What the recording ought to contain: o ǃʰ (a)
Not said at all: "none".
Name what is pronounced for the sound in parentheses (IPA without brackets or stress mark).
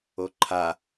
a